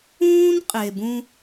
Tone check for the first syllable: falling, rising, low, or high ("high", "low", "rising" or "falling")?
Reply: high